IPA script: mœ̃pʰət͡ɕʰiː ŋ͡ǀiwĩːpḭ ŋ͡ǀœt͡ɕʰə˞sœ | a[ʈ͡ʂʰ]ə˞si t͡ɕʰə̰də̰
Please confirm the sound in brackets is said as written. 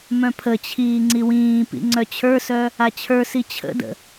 no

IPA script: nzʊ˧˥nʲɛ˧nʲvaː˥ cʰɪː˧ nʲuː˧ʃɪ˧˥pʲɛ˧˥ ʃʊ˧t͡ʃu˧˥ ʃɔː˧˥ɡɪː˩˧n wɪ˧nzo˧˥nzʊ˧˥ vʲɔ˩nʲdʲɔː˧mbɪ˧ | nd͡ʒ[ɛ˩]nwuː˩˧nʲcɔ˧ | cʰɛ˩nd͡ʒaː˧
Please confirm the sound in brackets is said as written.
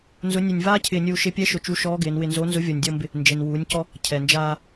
no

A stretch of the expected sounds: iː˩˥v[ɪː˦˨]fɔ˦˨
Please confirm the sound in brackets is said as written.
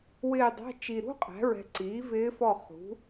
no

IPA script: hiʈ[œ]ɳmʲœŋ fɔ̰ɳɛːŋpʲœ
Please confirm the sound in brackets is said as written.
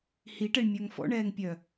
no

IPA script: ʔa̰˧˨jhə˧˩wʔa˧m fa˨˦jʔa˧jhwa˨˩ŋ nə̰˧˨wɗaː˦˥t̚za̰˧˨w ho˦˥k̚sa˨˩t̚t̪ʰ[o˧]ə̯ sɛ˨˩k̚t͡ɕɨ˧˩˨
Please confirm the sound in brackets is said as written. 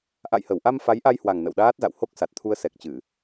no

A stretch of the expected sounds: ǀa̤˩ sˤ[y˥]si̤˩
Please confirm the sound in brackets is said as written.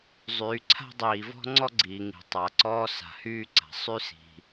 yes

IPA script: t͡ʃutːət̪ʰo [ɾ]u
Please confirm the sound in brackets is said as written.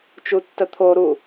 yes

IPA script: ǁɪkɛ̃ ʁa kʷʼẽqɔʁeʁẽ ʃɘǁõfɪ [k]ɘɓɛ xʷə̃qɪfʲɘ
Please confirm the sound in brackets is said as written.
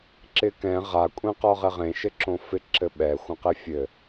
no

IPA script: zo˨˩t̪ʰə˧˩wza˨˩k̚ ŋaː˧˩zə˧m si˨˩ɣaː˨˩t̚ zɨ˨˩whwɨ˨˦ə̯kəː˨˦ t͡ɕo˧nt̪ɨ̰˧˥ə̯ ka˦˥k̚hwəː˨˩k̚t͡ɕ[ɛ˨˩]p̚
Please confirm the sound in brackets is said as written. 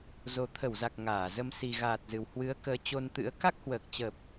no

